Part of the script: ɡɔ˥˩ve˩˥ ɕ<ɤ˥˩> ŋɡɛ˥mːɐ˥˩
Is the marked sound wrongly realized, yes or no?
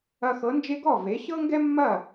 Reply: yes